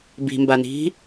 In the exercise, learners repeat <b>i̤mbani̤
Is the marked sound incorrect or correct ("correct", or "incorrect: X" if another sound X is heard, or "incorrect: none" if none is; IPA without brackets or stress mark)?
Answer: correct